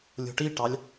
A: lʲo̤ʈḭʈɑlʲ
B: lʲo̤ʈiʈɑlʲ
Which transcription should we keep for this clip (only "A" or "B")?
B